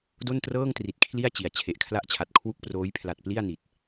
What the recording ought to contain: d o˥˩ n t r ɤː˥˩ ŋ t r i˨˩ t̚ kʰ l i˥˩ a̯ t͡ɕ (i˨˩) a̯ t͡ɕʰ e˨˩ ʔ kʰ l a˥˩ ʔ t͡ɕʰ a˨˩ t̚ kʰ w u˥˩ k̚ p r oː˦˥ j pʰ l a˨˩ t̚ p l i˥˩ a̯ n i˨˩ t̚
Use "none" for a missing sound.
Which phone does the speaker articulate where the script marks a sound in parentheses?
i˨˩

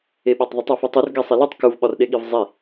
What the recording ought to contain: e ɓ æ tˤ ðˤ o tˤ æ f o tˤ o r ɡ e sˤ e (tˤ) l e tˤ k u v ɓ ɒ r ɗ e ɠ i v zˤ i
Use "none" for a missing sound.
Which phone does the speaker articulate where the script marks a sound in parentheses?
none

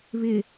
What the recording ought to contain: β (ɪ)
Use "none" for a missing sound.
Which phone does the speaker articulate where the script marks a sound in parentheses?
ɪ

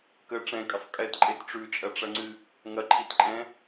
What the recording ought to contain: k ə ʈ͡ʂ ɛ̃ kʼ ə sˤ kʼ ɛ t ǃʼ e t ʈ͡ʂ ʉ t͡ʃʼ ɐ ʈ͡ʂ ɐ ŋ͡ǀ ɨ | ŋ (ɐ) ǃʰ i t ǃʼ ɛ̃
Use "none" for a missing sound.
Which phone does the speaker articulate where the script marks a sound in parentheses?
ɐ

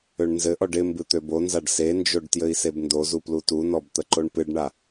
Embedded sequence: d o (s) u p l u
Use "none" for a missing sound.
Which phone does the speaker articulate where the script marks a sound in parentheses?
z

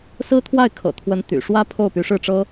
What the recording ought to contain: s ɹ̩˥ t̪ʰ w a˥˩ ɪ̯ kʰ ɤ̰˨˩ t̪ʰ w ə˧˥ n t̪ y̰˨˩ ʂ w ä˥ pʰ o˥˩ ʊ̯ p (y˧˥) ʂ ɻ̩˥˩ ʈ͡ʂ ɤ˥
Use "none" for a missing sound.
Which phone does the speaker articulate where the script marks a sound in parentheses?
y˧˥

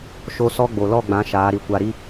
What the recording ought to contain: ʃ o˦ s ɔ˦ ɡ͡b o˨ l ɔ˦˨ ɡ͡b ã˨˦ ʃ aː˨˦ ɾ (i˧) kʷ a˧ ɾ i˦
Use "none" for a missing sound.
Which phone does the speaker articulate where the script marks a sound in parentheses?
i˧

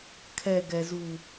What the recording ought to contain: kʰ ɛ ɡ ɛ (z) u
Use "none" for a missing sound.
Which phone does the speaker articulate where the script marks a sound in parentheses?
z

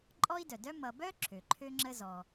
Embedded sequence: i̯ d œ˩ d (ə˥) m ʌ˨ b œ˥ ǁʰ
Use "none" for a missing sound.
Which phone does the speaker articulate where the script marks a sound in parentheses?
œ˥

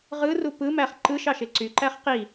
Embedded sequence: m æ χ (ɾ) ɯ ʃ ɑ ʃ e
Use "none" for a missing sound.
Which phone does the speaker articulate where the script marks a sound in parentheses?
ǃ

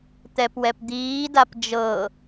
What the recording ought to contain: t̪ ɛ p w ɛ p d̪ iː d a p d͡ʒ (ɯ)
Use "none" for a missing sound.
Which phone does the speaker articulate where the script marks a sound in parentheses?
ɤ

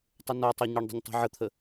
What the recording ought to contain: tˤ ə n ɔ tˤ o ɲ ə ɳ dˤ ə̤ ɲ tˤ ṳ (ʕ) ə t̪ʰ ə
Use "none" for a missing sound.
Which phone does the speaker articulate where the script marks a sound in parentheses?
ʕ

